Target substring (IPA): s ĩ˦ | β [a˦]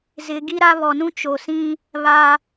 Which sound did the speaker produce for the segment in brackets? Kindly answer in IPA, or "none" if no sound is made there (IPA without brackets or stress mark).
a˦